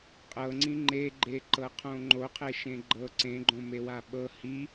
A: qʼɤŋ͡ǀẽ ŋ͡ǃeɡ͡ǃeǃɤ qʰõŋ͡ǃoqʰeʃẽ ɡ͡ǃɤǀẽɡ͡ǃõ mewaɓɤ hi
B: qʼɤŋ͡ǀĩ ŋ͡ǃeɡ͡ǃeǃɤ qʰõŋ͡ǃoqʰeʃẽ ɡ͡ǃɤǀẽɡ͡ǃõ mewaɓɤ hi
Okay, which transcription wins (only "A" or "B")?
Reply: B